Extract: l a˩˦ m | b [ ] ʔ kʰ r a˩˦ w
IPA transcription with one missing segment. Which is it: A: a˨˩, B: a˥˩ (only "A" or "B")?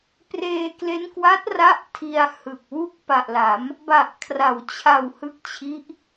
A